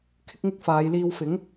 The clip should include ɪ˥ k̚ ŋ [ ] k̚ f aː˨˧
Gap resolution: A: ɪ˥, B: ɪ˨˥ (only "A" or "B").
A